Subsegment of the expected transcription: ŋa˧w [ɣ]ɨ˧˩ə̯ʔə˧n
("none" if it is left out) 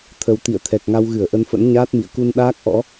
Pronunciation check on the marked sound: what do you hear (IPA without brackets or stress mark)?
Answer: ɣ